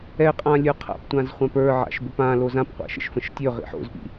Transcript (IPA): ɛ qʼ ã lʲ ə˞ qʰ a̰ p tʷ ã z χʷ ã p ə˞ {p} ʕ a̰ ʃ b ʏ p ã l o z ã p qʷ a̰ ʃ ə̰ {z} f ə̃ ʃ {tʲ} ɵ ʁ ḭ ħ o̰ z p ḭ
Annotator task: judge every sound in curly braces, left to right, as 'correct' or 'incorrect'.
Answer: incorrect, incorrect, correct

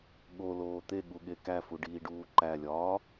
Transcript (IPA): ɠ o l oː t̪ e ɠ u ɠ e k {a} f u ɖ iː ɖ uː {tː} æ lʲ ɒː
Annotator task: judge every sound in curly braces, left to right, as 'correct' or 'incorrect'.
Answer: incorrect, incorrect

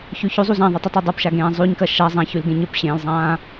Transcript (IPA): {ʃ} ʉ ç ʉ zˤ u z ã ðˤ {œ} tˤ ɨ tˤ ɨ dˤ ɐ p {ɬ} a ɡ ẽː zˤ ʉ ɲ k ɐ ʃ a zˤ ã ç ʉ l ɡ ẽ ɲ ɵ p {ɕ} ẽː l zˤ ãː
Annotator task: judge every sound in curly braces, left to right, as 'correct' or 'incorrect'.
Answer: incorrect, incorrect, incorrect, correct

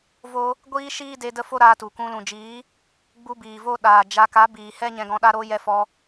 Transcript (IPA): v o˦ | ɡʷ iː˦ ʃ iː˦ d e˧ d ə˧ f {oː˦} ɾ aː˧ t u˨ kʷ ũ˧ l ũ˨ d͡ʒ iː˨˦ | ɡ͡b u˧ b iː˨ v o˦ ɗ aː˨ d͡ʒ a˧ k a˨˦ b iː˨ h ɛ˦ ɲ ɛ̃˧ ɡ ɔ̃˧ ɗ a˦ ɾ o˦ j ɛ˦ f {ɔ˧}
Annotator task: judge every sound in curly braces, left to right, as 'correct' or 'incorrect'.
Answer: incorrect, correct

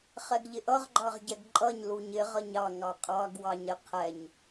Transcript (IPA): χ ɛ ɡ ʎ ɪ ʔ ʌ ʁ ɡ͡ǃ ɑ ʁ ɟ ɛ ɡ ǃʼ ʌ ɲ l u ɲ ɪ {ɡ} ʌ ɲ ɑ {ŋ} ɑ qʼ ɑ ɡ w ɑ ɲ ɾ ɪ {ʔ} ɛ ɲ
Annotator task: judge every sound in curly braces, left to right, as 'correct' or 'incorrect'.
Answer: incorrect, correct, incorrect

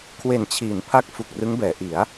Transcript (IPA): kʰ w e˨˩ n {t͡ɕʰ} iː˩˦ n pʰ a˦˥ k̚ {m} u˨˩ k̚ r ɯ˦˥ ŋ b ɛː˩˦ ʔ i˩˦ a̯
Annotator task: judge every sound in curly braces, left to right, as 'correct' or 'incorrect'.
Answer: correct, incorrect

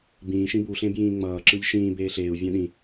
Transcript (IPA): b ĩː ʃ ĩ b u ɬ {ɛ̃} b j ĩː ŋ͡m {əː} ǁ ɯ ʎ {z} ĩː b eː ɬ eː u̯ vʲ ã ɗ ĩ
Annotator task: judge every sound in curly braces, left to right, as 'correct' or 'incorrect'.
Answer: incorrect, incorrect, incorrect

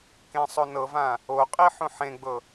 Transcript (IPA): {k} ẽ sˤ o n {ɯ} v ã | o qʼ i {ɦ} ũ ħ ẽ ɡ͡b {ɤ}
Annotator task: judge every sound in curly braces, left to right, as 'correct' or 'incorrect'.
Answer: correct, incorrect, incorrect, correct

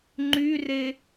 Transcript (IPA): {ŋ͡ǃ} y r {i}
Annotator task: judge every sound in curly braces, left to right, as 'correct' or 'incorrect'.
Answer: correct, incorrect

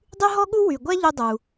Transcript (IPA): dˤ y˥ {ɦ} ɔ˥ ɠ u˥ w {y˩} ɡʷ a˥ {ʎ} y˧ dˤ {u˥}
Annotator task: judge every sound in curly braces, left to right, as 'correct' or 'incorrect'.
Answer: correct, correct, correct, incorrect

